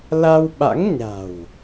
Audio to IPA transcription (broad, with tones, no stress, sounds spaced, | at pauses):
l a˧ w ɓ a̰˧˥ ŋ ɲ a̤˨˩ w